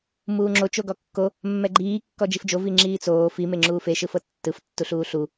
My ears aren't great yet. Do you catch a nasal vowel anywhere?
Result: no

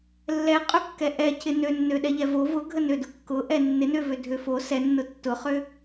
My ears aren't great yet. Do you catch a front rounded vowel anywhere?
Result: yes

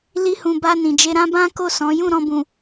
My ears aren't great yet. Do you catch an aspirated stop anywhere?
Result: no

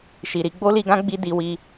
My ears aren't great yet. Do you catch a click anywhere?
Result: no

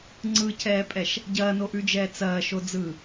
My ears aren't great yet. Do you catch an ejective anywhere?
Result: yes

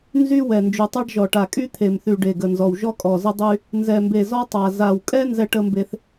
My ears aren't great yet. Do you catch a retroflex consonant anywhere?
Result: yes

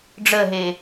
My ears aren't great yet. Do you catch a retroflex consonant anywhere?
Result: yes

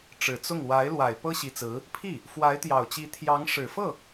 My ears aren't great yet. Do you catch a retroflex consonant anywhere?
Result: yes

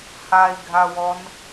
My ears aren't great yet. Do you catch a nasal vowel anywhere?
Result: no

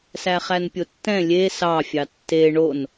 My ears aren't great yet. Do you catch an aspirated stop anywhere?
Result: no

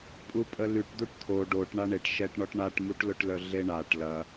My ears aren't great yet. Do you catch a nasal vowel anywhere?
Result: no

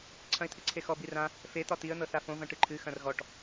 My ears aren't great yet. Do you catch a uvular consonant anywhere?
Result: no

